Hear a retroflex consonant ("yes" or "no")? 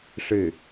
yes